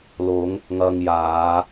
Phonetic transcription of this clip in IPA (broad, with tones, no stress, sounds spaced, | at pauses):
l ʊ˨˧ ŋ | ŋ ɐ˧ ŋ j aː˨˧